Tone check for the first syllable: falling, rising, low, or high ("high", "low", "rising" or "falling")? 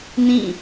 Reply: falling